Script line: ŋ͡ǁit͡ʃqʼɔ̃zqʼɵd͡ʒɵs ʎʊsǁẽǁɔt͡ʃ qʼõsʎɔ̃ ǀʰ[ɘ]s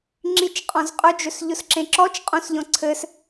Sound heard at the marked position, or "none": ɘ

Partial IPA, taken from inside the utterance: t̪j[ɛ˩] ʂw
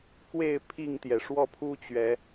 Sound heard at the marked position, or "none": ɛ˩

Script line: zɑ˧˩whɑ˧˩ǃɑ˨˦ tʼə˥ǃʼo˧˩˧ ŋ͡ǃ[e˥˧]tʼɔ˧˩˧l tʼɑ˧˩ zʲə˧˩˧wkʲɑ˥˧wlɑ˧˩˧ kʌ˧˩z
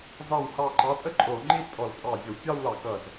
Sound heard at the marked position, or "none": i˥˧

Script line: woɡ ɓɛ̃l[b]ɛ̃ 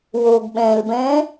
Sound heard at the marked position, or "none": b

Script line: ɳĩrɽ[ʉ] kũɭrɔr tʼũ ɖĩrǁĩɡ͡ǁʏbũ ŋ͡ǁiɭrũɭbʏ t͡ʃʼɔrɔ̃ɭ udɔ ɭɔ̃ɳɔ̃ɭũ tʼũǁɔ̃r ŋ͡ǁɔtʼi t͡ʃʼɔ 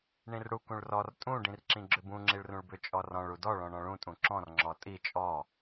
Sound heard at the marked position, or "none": u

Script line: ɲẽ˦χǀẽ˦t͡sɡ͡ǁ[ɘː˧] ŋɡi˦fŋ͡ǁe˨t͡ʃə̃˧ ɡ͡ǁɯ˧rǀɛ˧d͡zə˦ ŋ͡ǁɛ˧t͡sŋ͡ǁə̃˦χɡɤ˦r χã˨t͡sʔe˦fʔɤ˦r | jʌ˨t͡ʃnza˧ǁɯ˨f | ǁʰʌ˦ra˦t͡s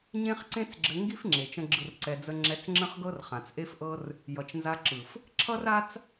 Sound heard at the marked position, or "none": ɘ˧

